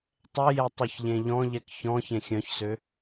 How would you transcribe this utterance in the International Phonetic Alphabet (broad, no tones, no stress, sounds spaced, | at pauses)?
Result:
tˤ ɛ j ɛ tˤ y ç ʎ ẽ ʎ ɔ̃ ʎ ɛ k ç ɔ̃ ç ẽ xʲ œ̃ ç s ø